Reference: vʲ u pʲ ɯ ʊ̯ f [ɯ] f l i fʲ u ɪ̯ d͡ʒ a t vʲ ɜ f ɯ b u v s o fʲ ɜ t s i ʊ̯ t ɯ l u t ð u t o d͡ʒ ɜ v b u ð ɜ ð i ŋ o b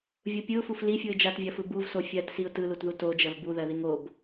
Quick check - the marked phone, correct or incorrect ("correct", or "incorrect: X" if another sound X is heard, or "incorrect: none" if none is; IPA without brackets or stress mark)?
incorrect: u